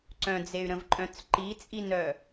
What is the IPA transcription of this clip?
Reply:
ǀœ̃d͡zey̯ɾə̃vǃʼœ̃t͡s ǃit͡sʼinœ

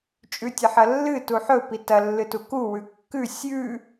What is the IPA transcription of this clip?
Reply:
t͡ʃʼʉtʲɐħɐlːɨ tuħɵ pitɐ lːɨtuku wʉkːʉ sʲʉ

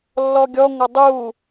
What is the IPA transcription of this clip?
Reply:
lːɔɡʲɔ ŋʷʌdˤu

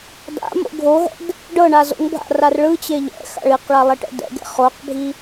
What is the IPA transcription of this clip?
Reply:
da̰mo̰ ɡʱoɦɛ̰d | ɖɤɳa zo̰ŋbʱa̰ rarɭɯt͡ɕe ʎɛ̰ xa̰ɭiqɭa lˠeʈɛ̰dɛ̰ɡɛ̰ χoqbʱi

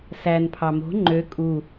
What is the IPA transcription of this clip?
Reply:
sænpʰɑ mo̤ ŋ͡ǃø kʼu

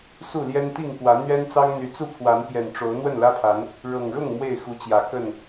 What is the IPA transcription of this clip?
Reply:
su˥˨ ljɛ˦nt̪i˥˨ŋkwä˨˦ n̪ɥɛ˦nt͡sɑ˦ŋ n̪y˨˦t͡su˥˨pʰwa˨˦n pjɛ˨˩nʈ͡ʂo˨˦ʊ̯ n̪wə˥˨nlä˦pʰa˨˦n | ɻɤ˨˩ŋɻʊ˥˨ŋ mwe˥˨ɪ̯xu˨˦t͡ɕjä˨˩kə˥˨n

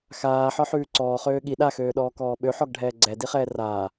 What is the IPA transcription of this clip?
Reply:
xaːħɒħʉː ǀɔːχøː ɠi ɗaxøːɗɔːkɔː ɓøħɔɡɖʱɛː ɡ͡ǀɛdiχɛː raː

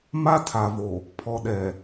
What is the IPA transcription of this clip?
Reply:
ma˦tʰa˨vo˨ | pʰɔ˨ɗɛ˨

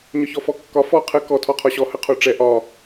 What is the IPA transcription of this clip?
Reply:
ɲɒçɔfɔkːɒ fɔ qʰə kɔ tʰɔqʰɒɕɔ həqʰoʈ͡ʂɛ ʔɒ

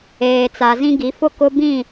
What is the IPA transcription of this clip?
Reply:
eː˨t͡sa˨zĩ˦ɡi˨˦ fʊ˦kʊ˦bĩ˦˨

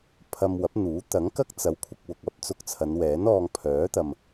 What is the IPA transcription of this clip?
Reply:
pʰɐ˧mwɐ˨˥p̚n̪uː˨˥ t̪ɐ˨˥ŋkɐ˥k̚t͡sɐ˨˥w kʷʰɐ˧k̚wʊ˨k̚ ɐ˨˥p̚t͡sʊ˧k̚t͡sʰɐ˨˧n wɛː˨˥nɔː˧ŋ pʰœː˨˥t̪ɐ˨m

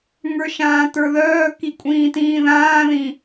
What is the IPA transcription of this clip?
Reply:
ŋə˞ʃãːtə˞ ðœː kikʷʼĩːtĩː ðãːðĩː

